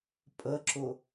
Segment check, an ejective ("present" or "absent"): present